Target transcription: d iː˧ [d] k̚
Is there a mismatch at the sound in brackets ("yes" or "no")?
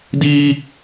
yes